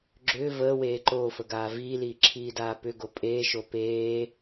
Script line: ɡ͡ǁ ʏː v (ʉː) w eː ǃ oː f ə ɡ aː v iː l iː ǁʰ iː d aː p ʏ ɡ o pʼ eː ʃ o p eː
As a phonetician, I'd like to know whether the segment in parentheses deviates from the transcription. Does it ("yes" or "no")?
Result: yes